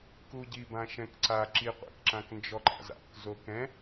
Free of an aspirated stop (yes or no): yes